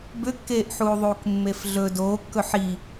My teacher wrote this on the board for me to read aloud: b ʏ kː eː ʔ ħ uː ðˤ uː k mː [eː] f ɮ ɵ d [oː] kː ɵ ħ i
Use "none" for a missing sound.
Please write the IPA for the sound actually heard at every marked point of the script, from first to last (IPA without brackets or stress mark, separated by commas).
e, oː